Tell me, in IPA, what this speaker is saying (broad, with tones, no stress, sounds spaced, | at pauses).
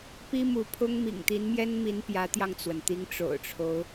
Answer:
p i˥ m u˧˥ pʰ ʊ˥ ŋ m ḭ˨˩ ŋ t̪ i˧˥ n m j ɛ˥ n m i˧˥ n p j ä˧˥ t̪ j ɑ˧ ŋ t͡s w ə˩ n t̪ i˧˥ ŋ ʈ͡ʂ o̰˨˩ ʊ̯ ʈ͡ʂʰ o˦ ʊ̯